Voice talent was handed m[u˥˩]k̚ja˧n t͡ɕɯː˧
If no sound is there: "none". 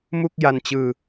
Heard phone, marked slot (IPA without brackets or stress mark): u˥˩